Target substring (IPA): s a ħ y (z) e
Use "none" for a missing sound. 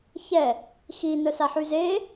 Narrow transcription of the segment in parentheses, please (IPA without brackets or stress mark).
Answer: z